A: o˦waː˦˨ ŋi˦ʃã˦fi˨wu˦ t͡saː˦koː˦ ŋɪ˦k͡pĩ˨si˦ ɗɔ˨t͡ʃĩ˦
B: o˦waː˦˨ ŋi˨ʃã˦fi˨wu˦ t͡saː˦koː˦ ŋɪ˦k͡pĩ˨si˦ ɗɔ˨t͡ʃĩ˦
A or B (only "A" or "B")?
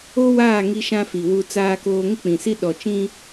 A